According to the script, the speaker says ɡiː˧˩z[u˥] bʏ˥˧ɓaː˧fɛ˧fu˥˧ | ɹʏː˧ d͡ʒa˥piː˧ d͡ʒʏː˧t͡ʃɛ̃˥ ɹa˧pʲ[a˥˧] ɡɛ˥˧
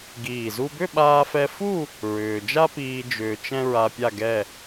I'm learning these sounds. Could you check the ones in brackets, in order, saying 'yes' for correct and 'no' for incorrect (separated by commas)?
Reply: yes, yes